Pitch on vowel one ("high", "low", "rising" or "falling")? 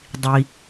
low